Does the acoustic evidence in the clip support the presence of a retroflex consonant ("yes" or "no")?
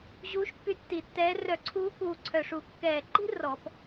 yes